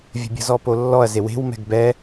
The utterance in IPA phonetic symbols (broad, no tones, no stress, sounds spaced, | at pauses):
vʲ ə̤ bʲ ə̤ z ɔ p o lː ɔ ɐ̯ z e w e̤ w m ɛ̤ ɡ b ɛ